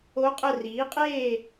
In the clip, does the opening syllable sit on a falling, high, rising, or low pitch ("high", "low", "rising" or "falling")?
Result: rising